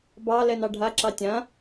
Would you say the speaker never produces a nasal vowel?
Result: no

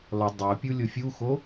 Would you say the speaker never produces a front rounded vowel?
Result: no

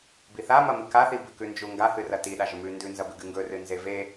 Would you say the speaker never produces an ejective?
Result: yes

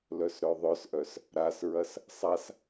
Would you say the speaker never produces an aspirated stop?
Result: yes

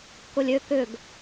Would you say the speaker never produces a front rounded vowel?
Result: no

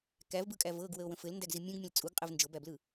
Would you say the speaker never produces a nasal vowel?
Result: no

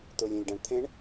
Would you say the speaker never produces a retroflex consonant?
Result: no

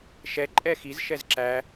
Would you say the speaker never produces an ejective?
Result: no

